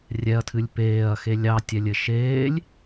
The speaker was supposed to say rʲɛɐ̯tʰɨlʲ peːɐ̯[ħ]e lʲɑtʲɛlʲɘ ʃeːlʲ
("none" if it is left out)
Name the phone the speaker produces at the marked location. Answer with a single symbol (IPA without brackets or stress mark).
x